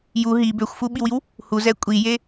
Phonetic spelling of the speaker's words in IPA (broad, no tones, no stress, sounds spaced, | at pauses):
j u ɦ i b ø xʷ f u ɓ i w i w | h u z ɛ kʷʼ i j e